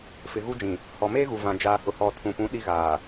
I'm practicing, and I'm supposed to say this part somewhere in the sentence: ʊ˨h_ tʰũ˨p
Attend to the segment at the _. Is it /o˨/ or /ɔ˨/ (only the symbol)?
ɔ˨